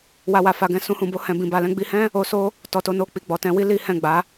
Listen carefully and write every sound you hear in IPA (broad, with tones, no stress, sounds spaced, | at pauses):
w a˧ w a˨ f a˧ ɡ ɛ̃˧ s ũ˧ h ũ˨ b o˧ h ɛ̃˨ b ĩ˨ b a˨ l ɛ̃˧ ɡ͡b i˧ h ɛ̃˦ | o˧ s o˦ | t ɔ˨ t o˧ n o˧ k͡p i˨ ɡ͡b ɔ˨ t ɛ̃˧ w i˦ l i˦ h ɛ̃˦˨ ɡ͡b a˨˦